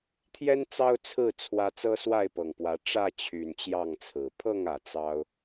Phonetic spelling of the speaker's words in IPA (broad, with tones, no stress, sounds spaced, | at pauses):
t̪ʰ j ɛ˦ n t͡s ɑ˦ ʊ̯ t͡sʰ ɹ̩˥˨ t͡sʰ w ä˦ t͡s ɤ˦ s w a˥˨ ɪ̯ p ɤ˨˩ ŋ p w ä˨˦ ʈ͡ʂ ä˥˨ t͡ɕʰ y˨˩ n t͡ɕ j ɑ˥˨ ŋ t͡sʰ ɹ̩˨˩ pʰ ɤ˥˨ ŋ ä˩ t͡s ɑ˦ ʊ̯